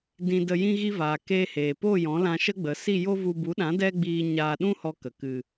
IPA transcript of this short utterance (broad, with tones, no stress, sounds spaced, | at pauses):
d ĩ˧ d ə˧ j ĩ˧ ɣ i˧ v aː˨ k eː˧ h eː˨ p o˦˨ j ɔ̃˨˦ l ã˧ ʃ ə˦ ɡ͡b ə˨˦ s i˦˨ j o˦ v u˧ b u˨˦ ɗ ã˨˦ d ɛ˦ ɡ͡b iː˧ ɲ aː˧ ɗ ũ˦ h ɔ˧ k ə˨ k ɨ˧